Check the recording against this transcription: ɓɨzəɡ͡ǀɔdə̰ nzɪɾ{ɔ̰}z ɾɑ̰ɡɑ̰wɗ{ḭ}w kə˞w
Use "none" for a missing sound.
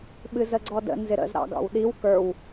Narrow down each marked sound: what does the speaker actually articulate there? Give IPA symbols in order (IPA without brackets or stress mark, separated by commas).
ə̰, i